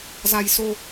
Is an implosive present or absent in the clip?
absent